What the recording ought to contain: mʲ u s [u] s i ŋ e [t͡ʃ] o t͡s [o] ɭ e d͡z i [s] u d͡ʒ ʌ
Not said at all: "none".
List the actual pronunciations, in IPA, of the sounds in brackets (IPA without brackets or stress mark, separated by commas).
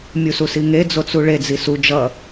u, d͡z, u, s